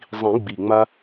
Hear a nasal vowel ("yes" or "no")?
yes